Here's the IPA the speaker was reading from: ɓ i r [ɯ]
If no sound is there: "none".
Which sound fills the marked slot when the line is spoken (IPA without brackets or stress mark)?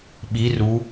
u